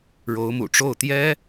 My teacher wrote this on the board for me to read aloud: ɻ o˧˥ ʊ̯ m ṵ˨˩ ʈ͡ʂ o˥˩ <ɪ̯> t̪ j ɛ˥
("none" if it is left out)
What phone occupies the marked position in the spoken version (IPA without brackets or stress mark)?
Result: ʊ̯